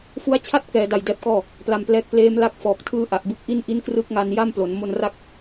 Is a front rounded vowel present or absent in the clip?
absent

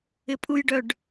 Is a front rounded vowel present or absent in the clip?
present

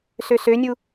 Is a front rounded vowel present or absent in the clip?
present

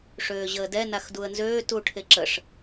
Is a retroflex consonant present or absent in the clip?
present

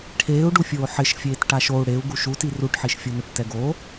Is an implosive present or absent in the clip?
absent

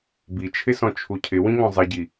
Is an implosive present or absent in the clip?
absent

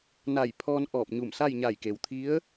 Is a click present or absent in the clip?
absent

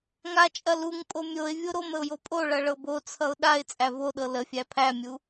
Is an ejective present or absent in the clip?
present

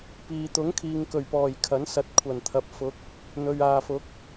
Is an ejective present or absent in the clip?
absent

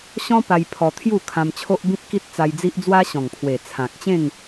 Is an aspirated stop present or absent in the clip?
present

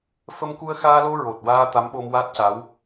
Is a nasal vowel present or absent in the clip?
absent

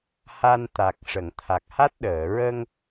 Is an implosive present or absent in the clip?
present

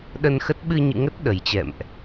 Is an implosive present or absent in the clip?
present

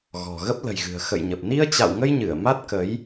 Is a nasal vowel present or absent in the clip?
absent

